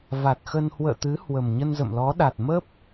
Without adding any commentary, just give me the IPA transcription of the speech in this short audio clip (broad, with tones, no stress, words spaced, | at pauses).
va˨˩t̚xə˧n hwə̰ː˧˨t̪ɨ˨˦ hwə˨˩m ɲə˧nzə̰˧˨mlɔ˨˦ɗa˨˩t̚ mə˦˥p̚